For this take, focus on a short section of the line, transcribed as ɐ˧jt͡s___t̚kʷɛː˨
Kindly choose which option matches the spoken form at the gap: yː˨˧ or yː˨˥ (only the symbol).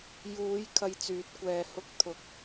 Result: yː˨˥